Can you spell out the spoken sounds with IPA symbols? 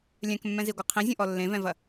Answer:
lʲɛ̃kmːɛ̃ziɡʷɨ qʰĩzʲũʔɔ lːẽvɛ̃vɐ

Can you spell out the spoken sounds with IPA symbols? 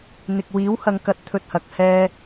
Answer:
n̪ɪ˨k̚wiː˨˥whɐ˨˧ŋ kɐ˧t̚t̪ʰɵ˧t̚ hɐ˧k̚hɛː˥

